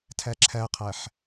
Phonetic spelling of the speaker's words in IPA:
tʰ æ ǁʰ æ qʰ æ ħ

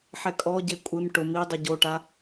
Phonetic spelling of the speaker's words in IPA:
ħ ɛ kʼ ɔ ɟ e kʷʼ ɪ m ʈ ʊ m i dˤ ʊ ɟ o ʈ a

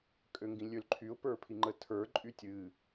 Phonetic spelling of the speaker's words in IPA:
kʼ ø ŋ ɡ ĩ lʲ ø l ǃʰ y ʊ̯ p ə˞ pʰ i ŋ͡ǃ ə tʰ ə˞ ǃʼ y tʲ ɨ

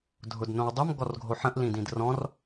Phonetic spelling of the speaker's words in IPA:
dʱ ʊ d n õ w dˤ ʊ m ɡ ɔ r ɡʱ o ħ ə̃ ʔ l ĩ d ĩ d r ɔ̃ r

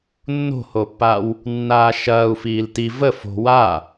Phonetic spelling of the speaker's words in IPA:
nː o̤ h o pː a w | nː aː ʃ ɐː u̯ f iː l t i v ə f o̤ w a

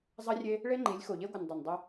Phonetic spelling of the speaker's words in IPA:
zˤ ɐ˦ rʲ e˦ | ɭ e˦ ŋ͡ǃ i˨˦ lʲ x o˨ ʎ e˦ ɡʷ ɨ˨ n dˤ o˨ n dˤ ʉ˦

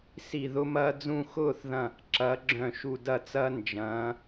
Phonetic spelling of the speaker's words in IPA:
s i˧˩ ð ʊ˦ m ɐː˦ d͡z ũ˥˨ x ʊː˥˨ θ ð ɐ̃˧˩ | ǁ ɐː˩˧ ɡ͡ǁ œ̃˧˩ ʃ u˧˩ d ɐ˥˨ t͡s ɐː˦ n d͡ʒ ɐ̃ː˩˧

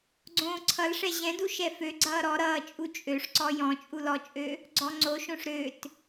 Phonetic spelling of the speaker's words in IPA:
ɡ͡ǀ õː ǀʰ ʌ l ʂ ɛ ʑ ɛ̃ d u ʃ ɛ f ø ɡ͡ǀ ʌː ɾ ɔ ɾ ʌː t͡ʃʼ u t͡ʃʼ ø ʂ ǀ ɔ j ɔ̃ t͡ʃʼ u l ɔ t͡ʃʼ ø | ɡ͡ǀ ɔ ŋ͡ǀ o ʃ õ ʂ ɾ ø t

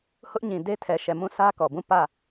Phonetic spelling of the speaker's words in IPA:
h ʊ˦ ʔ ɲ ĩ˨ d e˦ tʰ ɛ˨ ʃ ɛ˨ m ũ˦˨ sʰ ä˦ k ɔ˨ b ũ˦˨ p ä˦˨

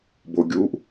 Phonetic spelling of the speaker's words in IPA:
b o ɡʲ u ʔ

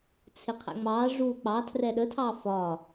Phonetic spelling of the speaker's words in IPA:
t͡sʰ ɪ qʰ æ̰ ŋ͡m ɑ ʐ uː k͡p ɑ tʰ r ɛ ɗ ə tʰ ɑː f ɒː

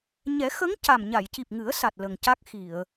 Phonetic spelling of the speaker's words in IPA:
ɲ ɛ˨˩˦ x ə˧˥ ŋ c a˨˩ m ɲ a˨˩˨ j c i˨˩ p̚ ŋ ɨ˨˩˦ ə̯ s a˨˩ t̚ l ə˨˩ ŋ c a˦˥ k̚ x i˨˩˨ ə̯

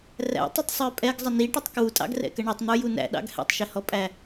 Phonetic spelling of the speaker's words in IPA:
r æ̰ tˤ ɪ tˤ sˤ ə˞ pʼ ɛ ɡ zˤ ə n i ʈ ʊ tˤ k w u tʼ ɑ̰ ɡ r ɛ̰ k ə ɳ ʊ tˤ n̪ ə˞ j u n æ̰ ɗ ɑ̰ ɡ h ɛ̰ tˤ ʃ ɪ h ɔ pʼ æ

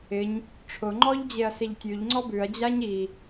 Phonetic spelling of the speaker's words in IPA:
ɪ ɲ | ʈ͡ʂʰ ʊ ŋ͡ǃ ɔ ʎ d͡ʑ e ɐ̯ s e ʎ tʲ ʉ ʎ ŋ͡ǀ ɔ b ʉ ɐ̯ d͡ʑ a ɲ i

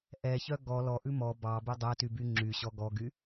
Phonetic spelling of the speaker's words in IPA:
ʔ ɛ ç œ ɡ ɔ l ɔ ʔ ʉ m ɔ b ɑ b ʉ dˤ ɛ t y b y ŋ͡ǁ y ɕ ɔ ɡ ɔ ɡ y

